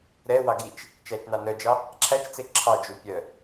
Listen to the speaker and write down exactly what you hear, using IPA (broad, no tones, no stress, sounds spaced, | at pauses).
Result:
ɾ ɛ w ɑ ɡ i t͡ʃ | t͡ʃ æ t͡ʃ n ɑ n œ d͡ʒ ɑ | ǁʰ æ t͡ʃ t͡s e ǁʰ ɑ d͡ʒ u pʲ œ